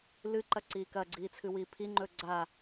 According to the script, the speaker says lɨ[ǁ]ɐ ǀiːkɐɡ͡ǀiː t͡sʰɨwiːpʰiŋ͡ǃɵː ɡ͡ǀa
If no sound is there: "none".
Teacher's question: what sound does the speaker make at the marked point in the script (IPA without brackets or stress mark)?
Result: ǃ